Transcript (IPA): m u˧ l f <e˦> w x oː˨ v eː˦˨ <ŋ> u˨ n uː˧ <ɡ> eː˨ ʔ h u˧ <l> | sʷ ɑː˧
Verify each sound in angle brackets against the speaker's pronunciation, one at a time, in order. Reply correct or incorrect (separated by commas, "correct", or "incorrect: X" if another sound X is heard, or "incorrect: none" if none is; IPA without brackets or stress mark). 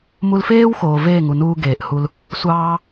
incorrect: eː˦, correct, correct, correct